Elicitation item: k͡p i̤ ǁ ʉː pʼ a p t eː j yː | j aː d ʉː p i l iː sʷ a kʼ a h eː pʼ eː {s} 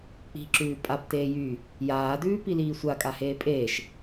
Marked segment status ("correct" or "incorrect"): incorrect